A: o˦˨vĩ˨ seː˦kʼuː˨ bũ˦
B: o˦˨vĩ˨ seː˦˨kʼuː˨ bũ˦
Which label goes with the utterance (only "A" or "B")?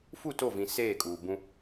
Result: B